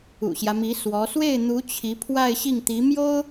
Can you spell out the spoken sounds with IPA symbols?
ṵ˨˩ɕjä˦mi˧˥ swɔ˧˥ swe˥˩ɪ̯n̪u˧˥ t͡ɕʰi˧˥pʰwa˥˧ɪ̯ɕi˥˩ŋ t̪i˧˥mjo˥ʊ̯

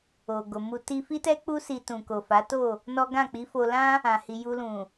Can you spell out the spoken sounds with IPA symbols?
o˨ɡo˨mu˧ ti˧fi˦tɛ˦ k͡pu˦si˧ tũ˨ko˨fa˨˦to˦˨ | nɔ˦ ɡã˦˨k͡pi˨˦ fo˧lã˦ | ã˨hi˨ju˧lũ˨

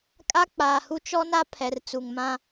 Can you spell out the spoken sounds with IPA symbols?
kʼa˦k͡paː˨hu˦ t͡ʃɔ˦na˦ pʰɛ˨rt͡su˨ŋmã˦

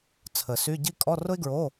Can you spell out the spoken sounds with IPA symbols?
t͡sʰə˨˩˦sy˧˥˧ ɟi˥ kʼɔ˧˥˧rʊ˥ɪ̯ɡɹo˧˥˧

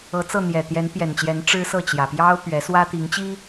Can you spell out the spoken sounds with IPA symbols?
ɤ˨˦t͡sɤ˥˨ n̪jɛ˨˩t̪jɛ˨˦npjɛ˨˩nt͡ɕjɛ˨˦n ʈ͡ʂɻ̩˦sɤ˥˨t͡ɕjä˨˩ pjɑ˦ʊ̯pɥɛ˨˦swä˦ t̪i˨˦ŋt͡ɕi˦

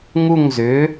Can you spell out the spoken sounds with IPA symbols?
ŋu˥˧ŋzʏ˨˥

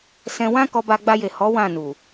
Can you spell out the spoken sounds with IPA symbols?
sɛ̃˧ wã˦ kɔ˧ba˧ɡ͡ba˧je˨ hɔ˨˦ wã˦˨ nu˨

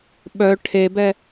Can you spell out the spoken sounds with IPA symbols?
ɓœ ʈʰebɛ

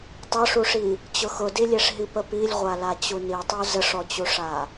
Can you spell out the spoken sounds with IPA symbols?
tˤʊʂuʂi | t͡ɕʊxʊdilʲeʂ ɦipəpilʲʁʷa lat͡ɕunitˤu zəʂɔt͡ɕuʂa

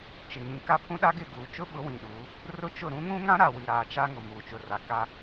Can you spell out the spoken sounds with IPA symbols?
t͡ʃɪ˨ ŋĩ˨ ka˦pʰũ˦ɗa˦ ɡɪ˦˨ɡuː˨t͡ʃʊ˦ɓʊ˨˦ wĩ˨ɗuː˨˦ | rʊ˦t͡ʃʊ˦˨ ɾũ˦ŋũ˦ŋã˦ ɾa˨wi˨ɾaː˨ t͡ʃa˦ŋʊ˨ muː˨t͡ʃʊ˨ra˨ ka˦

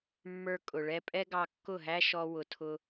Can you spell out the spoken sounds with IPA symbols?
mːə˞˦kʼʊ˨ɭɛ˦ pʼɛ˦ɡɑ˧kːʊ˦˨ɦæ˦ ʃɔ˦wʊ˧tʰʊ˦

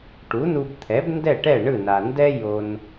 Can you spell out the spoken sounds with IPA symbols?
ʈu˩˥nu˧bt̪ʰɛ˩˥b ndɛ˥˩ʈɛ˥˩ ɳɯ˥˩na˩ ndɛ˥jo˧n

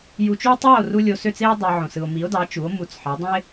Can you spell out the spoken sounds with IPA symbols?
ju˧t͡ʃy˥o̯ tˤɑ˥˩o̯ru˧ lʲo˧sø˥˩t͡se˥o̯ dˤɑ˧ ʕõ˩sɯ˩o̯mi˩˥o̯dɑ˩˥ t͡ʃu˩˥o̯mu˩˥t͡sħɑ˩˥dˤõ˥e̯

